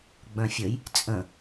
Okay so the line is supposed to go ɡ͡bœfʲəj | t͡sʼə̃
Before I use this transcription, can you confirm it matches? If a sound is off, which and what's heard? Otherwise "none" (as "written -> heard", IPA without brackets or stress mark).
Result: œ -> œ̃